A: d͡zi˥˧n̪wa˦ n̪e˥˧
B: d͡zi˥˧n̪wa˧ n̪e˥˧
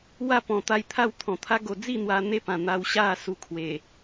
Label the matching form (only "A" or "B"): B